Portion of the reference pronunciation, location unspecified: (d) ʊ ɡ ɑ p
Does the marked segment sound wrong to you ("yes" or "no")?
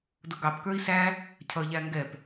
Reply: no